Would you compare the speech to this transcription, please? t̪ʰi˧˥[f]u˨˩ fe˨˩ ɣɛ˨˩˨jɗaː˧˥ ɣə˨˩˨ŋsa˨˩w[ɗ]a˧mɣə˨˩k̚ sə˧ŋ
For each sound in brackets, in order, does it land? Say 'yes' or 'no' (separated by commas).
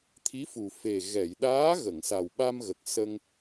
yes, no